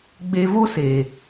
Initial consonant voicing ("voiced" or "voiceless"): voiced